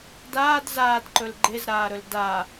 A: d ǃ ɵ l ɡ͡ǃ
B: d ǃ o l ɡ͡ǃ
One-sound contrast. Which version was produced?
A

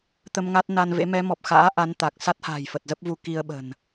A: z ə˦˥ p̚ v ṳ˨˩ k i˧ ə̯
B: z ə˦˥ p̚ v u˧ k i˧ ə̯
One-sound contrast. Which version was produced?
B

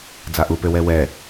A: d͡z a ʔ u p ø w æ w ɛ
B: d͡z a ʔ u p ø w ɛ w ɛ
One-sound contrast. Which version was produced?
B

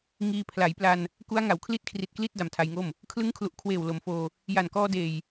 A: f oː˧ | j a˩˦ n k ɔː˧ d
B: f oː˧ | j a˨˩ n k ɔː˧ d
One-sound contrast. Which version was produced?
B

